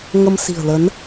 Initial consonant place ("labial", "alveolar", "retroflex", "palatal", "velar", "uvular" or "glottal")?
velar